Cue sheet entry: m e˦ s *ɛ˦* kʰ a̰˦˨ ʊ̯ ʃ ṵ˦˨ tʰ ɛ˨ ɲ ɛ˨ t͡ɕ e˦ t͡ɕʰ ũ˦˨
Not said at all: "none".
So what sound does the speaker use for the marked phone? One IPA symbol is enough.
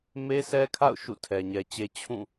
ɛ˦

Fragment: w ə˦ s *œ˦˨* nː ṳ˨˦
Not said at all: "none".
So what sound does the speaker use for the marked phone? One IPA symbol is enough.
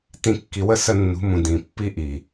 ə˦˨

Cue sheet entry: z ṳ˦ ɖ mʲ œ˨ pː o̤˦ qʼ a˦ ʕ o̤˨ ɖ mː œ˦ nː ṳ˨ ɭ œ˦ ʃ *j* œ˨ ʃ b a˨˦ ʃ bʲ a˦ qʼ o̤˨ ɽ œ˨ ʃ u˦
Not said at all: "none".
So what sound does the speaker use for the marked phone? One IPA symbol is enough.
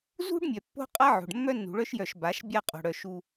j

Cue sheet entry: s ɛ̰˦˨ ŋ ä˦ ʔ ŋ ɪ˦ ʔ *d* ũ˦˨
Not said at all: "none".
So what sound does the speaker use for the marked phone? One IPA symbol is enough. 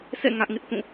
θ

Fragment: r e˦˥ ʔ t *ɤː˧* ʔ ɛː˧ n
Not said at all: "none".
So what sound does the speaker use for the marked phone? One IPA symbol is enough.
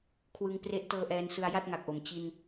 ɤː˧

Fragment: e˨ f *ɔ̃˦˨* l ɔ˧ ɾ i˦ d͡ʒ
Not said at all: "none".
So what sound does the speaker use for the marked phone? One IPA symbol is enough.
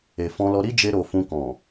ɔ̃˧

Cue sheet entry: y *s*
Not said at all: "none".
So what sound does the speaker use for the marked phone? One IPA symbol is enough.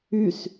s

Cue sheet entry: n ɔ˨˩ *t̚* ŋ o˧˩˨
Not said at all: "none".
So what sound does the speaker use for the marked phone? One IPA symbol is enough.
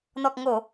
k̚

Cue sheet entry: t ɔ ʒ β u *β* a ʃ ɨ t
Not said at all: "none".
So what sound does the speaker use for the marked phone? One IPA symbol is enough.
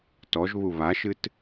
β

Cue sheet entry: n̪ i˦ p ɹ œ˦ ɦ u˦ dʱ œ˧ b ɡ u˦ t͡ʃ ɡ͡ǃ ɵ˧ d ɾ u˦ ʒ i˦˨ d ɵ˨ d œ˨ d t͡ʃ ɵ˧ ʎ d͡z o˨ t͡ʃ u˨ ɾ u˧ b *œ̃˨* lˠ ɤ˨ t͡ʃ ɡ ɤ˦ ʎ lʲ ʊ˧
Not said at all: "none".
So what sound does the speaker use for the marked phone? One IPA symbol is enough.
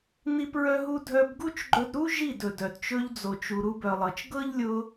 œ˨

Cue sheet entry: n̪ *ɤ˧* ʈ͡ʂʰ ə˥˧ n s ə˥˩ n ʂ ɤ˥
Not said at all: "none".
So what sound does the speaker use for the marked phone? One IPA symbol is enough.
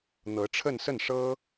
ɤ˧˥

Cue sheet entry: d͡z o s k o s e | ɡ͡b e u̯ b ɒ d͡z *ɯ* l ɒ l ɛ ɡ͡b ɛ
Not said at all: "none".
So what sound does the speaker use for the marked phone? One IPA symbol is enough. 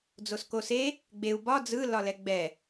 ɯ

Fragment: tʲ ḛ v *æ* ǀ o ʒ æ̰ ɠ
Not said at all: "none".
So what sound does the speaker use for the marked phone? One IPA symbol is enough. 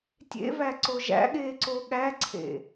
æ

